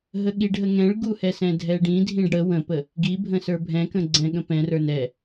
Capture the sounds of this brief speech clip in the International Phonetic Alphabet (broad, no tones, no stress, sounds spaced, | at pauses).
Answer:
ɦ ə ɠ i ɖ ɦ ə ŋ ɛ̃ ɭ ɡ u h ɛ s ɛ̃ dʱ ɛ ɖ ĩ dʱ ĩ ɖ ɽ ə w ə̃ p ə | ɡ i bʱ ə̃ s ə˞ bʱ ɛ̃ k ə̃ ɡ͡ǀ ɛ̃ ɠ ə̃ p ɛ̃ r ə˞ n ɛ